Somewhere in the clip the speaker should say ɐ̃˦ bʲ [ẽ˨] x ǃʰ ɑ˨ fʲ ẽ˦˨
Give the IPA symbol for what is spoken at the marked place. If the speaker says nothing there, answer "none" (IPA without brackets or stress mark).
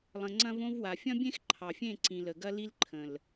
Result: ẽ˦